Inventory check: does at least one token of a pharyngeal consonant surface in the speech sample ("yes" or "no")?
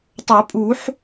yes